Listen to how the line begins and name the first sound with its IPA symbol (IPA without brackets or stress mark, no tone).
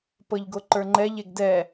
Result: p